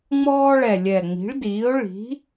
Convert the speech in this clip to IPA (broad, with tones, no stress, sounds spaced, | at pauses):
ŋ͡m ɔː˥ ɭ ɛ˨˩ lʲ ɛ˨˩ ŋ͡m i̤˩˥ ɭ d iː˩˥ ʊ̯ ɭ i̤˩˥